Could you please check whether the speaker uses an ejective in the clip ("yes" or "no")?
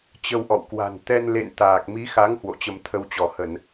no